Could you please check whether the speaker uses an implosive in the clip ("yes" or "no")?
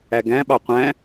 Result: yes